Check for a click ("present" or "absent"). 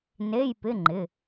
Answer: present